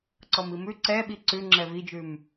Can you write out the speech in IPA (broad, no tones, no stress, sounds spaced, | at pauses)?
ǀ ɔ m i m ʉ ǀ ɛ ɓ i ǀ ʉ ŋ͡ǁ ɛ v i d͡ʒ ʉ m